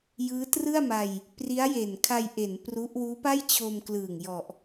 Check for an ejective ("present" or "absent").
absent